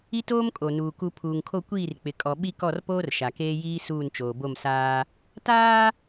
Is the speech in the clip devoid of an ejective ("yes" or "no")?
no